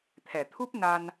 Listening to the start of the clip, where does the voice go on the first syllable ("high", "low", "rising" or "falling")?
low